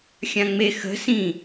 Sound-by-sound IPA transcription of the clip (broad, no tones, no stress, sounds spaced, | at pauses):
xʲ ã ŋ͡m e x ə̤ s ĩ